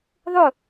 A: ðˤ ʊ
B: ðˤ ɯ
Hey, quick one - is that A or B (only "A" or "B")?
A